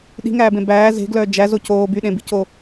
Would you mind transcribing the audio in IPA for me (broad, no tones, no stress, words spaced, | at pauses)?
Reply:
ɗi̤ŋæːbẽ bæː ze̤ɡlœː d͡ʒæzo coː byɗẽbico